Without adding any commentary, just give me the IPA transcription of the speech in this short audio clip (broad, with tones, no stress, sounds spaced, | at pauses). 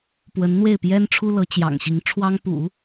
p w ə˧˥ n n̪ w e˥˩ ɪ̯ p j ɛ˥ n ʈ͡ʂʰ u˥ l ɤ˧˥ t͡ɕ j ɑ̰˨˩ ŋ ɕ i˧˥ ŋ ʈ͡ʂʰ w ɑ˥ ŋ p ṵ˨˩˦